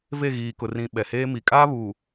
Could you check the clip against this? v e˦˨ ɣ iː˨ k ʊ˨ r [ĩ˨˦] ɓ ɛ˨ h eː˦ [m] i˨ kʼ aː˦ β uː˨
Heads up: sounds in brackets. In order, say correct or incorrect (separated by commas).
incorrect, correct